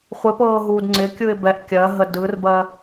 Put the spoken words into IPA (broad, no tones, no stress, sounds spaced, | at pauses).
χʷ ɪ p ɤː ɦ uː d ŋ͡ǀ ɪ kʲ ɯ ɪ̯ b ɛ ʔ kʲ ɜ ɦ ə d ɯ r b ɜ